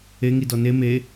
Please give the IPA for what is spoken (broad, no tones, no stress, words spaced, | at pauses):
eŋidɔ ne me